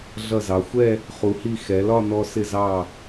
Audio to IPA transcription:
ɮʌ˧˩zɑ˩˧xʷɛ˥˧ | χu˩˧hi˧˩ xɛ˩˧lɒ˥˧nɔ˧ sɪ˧˩zɑ˧˩

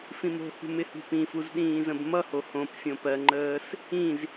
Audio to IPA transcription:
fĩmo̤hṳ mɪhṳpĩfuz ɗĩːzə̃bmʌho hõp fʲõpɜŋ͡ǃəːs | ĩz

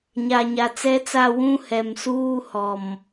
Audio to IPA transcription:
ɲa˨ɲa˨t͡sɛ˦t͡sa˦˨ wũ˦hɛ˨msuː˦ hɔ˨m

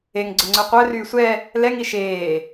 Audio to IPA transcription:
eŋɡ͡ǀʊŋ͡ǀø qʷœryː sʷɛ | lɛŋi ʃeː

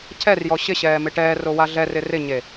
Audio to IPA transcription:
cʰɛrjɔ ɕɪɕɛːmɪ ʈɛːrowa ɮɛrɪ rɪɲe

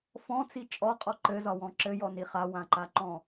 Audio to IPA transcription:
fɔ̃t͡si t͡ʃʼɔqʼɔ ǃɘzɒwɔ̃ ǁɘjɔni χawãǃaǃɔ̃

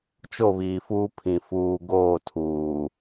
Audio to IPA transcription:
t͡ʃo˦˨βiː˨fuː˦pʰĩ˨ fuː˨ ɡoː˦˨ tʰuː˨

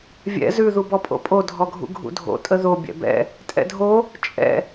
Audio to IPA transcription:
vʲɛ̰ zʉ ðubɔpʼo̰pʼo dʱɔɡʱṵɡʱṵdʱo̰ tʼəðo bʲɛ̰bɛ̰ | tʼɛ̰dʱo | t͡ʃʼɛ̰

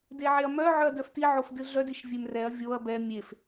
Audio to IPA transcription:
deʕeɐ̯mœʕœɐ̯ dœftiʕof dɨɮœdiʃ vʲemrɛɐ̯ vʲoɐ̯ bɛ mʲef

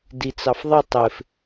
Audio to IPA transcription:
dit͡sɑfðˤɪ tˤɪf

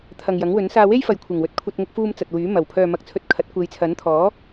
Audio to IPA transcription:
t̪ʰɐ˨ŋjɐ˨˥ŋwɵ˨˥n saː˧we˥j fɐ˨jkʷʰɪ˨˩ŋwɵ˨˥t̚kʷʰɐ˧t̚ ŋʊ˧k̚fuː˧m t͡sɐ˨t̚wyː˨˥ mɐ˨˩wpʰœː˨ mɐ˧k̚t͡sʰɵ˧t̚kʰɐ˨˥t̚ kʷe˨˧jt͡sʰɐ˨˥nt̪ʰɔː˨˥

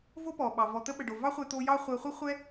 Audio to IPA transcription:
vo˦pɔ˨ɓɑ˨ vɔ˨t̪ə˧ɓə˨ɖo˨ vɑ˦χʷɛ˧ t̪o˧ jɑ˦ χʷɛ˧χʷə˦χʷɛ˦

